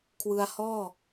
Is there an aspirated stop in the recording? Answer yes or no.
yes